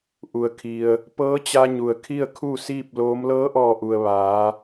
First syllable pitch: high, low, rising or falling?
low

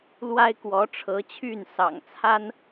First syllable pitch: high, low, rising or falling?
high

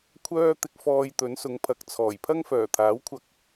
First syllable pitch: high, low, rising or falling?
high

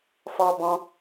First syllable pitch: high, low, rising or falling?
high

